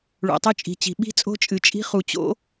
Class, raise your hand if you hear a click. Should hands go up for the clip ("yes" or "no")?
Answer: no